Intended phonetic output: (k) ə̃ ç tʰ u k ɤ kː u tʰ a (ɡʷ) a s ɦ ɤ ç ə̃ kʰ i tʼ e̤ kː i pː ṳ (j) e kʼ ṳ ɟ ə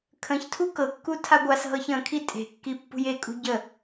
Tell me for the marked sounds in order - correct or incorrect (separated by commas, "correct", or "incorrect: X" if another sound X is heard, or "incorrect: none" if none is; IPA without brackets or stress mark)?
incorrect: kʰ, correct, correct